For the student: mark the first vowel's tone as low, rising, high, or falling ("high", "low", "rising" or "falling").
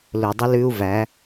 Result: low